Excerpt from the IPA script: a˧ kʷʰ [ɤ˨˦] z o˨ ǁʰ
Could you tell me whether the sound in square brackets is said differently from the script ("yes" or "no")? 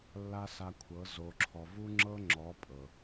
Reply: no